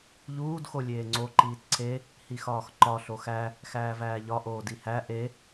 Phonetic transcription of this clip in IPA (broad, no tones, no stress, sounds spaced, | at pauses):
ʎ uː d x o lʲ eː ŋ͡ǀ o ǃ iː t ǀʰ e | h i x ɒː x ǃ ɒ ɬ o x æ | x æː v æː ʎ ɒ ʔ oː d i h æ ʔ e